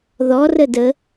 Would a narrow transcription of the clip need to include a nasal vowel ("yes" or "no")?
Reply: no